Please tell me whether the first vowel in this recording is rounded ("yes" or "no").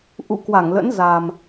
yes